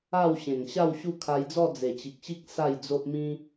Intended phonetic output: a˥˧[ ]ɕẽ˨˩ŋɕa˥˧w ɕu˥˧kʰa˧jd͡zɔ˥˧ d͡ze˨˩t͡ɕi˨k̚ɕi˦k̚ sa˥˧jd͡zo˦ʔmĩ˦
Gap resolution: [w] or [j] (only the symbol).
w